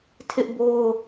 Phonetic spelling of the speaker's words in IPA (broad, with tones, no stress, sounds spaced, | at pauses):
tʰ ɪ˦ ʔ b o˦ ʊ̯